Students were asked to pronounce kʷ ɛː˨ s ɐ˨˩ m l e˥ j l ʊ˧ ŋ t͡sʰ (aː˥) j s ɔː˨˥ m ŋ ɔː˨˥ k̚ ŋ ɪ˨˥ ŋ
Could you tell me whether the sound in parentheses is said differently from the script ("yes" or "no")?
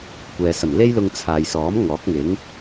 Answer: yes